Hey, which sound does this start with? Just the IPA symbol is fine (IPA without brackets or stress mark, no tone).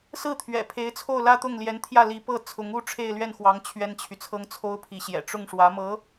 s